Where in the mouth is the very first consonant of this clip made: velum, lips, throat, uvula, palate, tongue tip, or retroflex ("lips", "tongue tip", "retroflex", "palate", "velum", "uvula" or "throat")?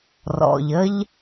tongue tip